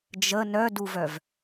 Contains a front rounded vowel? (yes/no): yes